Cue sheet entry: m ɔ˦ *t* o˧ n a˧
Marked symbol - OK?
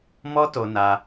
yes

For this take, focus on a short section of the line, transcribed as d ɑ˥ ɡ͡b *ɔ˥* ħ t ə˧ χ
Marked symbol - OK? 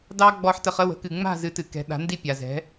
no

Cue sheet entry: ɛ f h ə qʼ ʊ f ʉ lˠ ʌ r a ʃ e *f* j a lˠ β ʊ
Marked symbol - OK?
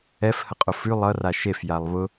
yes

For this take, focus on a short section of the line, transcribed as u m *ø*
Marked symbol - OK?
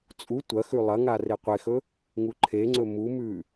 no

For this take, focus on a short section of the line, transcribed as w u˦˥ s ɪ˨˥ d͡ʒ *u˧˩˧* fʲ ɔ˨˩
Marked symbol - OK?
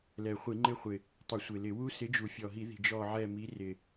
no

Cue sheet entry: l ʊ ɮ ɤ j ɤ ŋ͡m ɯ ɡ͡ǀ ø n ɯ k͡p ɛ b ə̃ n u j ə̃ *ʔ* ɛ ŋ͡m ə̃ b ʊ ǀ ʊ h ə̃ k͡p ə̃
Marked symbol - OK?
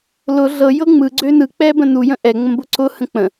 yes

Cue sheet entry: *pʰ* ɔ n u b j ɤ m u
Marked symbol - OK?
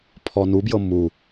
yes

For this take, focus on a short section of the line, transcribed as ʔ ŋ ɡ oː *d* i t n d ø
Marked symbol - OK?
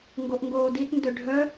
yes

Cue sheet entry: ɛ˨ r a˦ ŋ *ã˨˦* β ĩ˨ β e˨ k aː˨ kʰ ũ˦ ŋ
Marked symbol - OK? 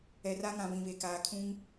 no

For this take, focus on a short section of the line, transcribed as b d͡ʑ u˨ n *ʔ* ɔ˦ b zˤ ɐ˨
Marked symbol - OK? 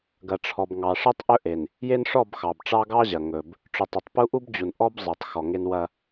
yes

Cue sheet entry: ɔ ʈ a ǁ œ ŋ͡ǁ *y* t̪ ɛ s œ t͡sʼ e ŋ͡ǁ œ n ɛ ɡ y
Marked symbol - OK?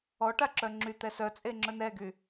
yes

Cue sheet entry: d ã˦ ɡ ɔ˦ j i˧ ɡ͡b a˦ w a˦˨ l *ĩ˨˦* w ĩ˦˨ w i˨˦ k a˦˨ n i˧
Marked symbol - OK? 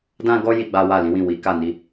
yes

